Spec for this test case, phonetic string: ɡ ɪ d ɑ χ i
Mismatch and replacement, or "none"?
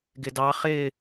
i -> ɪ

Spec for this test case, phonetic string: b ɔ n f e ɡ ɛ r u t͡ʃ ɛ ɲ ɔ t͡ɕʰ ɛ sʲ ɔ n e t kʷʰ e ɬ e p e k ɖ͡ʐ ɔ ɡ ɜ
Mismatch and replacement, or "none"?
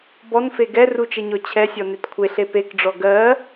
none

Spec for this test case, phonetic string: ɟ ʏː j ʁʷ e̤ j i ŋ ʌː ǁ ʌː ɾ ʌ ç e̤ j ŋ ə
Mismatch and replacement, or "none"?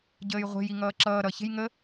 ʏː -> əː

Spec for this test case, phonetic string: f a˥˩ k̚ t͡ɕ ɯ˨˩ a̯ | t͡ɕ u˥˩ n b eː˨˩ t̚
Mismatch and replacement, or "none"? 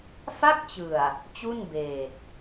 none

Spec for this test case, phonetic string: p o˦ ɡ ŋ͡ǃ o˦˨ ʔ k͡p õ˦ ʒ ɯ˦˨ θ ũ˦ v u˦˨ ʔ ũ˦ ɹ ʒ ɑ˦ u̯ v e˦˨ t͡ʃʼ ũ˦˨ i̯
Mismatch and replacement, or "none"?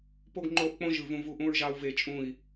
θ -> v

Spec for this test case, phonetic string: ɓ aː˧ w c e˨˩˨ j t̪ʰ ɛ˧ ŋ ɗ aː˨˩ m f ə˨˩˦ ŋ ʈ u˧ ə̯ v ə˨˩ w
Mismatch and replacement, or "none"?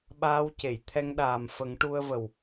none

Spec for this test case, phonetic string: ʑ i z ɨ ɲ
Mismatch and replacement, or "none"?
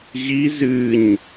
none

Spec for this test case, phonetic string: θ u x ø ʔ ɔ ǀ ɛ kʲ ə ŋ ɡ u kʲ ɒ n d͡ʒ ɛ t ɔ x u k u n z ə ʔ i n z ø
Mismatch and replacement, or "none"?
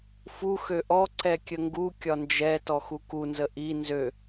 θ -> f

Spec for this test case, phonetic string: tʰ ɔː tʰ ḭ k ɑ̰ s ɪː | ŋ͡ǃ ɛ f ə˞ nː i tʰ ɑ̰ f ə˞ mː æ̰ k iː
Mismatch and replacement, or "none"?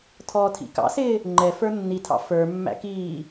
none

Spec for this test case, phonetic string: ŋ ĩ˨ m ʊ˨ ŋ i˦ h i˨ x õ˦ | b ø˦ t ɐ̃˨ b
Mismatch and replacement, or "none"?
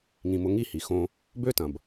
none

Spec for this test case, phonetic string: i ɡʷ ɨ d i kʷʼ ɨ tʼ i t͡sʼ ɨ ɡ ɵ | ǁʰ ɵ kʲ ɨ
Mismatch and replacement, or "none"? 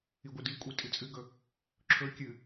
none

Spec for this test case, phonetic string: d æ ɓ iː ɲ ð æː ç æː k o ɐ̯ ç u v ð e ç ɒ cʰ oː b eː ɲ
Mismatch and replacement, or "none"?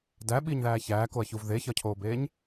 none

